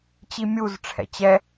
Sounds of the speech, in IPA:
t͡ɕ i mʲ u z ʈ͡ʂʰ ɛ̰ t͡ɕ ɛ

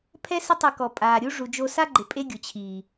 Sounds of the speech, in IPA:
pʰ ɛ˦ s ɪ˦ tˤ ɛ˧ k ɔ˨ pʼ aː˨ ɾʲ u˦ ʐ u˨ d͡ʒ o˧ s a˦ ɡ͡ǃ ɪ˨ pʼ e˦ ɡʲ ʊ˨ t͡ɕʰ iː˨

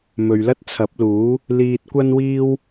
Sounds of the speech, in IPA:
m ɵ˨ ɥ l ɐ˥ t̚ t͡sʰ ɐ˨˥ p̚ l uː˨˥ | l iː˧ t̚ kʷ ɐ˥ n w iː˥ w

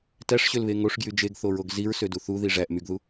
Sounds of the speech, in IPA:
t æ ʂ ɕ ø l β e ŋ o ʂ ɡ j y d͡ʒ e ɡ θ o ɹ o ɡ z i ɹ s ø d u θ u ð i ʐ æ ʔ m y ɡ ð u

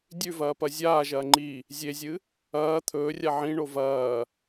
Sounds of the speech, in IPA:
dʲ ʉ v ɐː p ɐ zʲ aː ʒ ɐː ŋ͡ǃ i | zʲ e zʲ ɨ | ɐː t̪ʰ ɵː rʲ a ʕ ĩ ɳ o v ɐː

